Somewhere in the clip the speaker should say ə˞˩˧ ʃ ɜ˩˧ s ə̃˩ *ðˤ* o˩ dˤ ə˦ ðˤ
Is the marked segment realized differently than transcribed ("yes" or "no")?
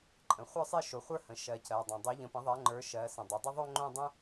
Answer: yes